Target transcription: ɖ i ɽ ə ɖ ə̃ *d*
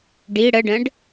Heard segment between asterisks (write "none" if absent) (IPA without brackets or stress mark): ɖ